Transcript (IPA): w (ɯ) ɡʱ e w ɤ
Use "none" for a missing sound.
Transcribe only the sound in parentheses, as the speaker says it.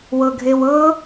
ɤ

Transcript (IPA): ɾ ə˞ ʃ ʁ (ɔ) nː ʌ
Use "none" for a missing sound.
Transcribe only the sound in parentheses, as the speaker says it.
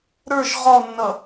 ɔ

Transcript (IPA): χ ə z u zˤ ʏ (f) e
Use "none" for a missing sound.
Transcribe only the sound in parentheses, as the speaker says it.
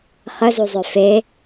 f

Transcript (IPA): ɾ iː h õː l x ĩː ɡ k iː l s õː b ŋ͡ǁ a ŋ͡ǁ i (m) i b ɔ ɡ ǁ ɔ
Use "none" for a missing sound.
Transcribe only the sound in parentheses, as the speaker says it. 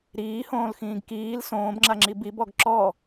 b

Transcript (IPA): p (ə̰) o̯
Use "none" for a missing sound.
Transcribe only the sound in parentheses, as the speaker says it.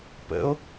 ə̰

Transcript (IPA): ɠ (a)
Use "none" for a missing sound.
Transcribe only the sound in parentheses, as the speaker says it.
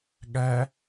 æ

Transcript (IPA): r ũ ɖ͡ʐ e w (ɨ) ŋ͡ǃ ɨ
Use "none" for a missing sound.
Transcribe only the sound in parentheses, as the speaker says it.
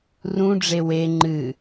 e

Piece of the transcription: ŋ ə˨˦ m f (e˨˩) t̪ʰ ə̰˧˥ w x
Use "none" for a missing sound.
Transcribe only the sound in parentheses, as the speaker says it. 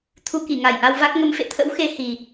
ḛ˧˨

